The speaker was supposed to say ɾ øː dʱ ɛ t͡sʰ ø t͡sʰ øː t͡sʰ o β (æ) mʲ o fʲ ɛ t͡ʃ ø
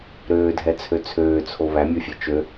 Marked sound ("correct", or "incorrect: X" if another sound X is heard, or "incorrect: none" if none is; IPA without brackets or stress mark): correct